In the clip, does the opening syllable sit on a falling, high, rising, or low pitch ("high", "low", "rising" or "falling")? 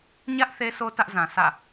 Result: high